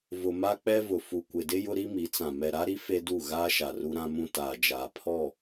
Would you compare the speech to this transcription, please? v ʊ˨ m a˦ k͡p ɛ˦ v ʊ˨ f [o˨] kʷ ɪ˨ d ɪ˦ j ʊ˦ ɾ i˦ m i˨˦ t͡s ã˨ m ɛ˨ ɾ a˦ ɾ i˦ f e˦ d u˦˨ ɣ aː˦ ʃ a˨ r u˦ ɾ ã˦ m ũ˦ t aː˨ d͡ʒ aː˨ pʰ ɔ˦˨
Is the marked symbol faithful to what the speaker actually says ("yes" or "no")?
no